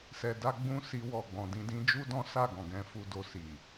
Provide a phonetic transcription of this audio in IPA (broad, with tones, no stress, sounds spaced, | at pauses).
s ɛ˨ d a˧ ɡ͡b ũ˦ s i˧ w ɔ˨ ɡ͡b ɔ̃˨ d ĩ˧ d ĩ˦ d͡ʒ u˦ d ɔ̃˦ s a˦˨ ɡ ɔ̃˨ ɡ ɛ̃˨˦ f u˧ d o˧ s i˨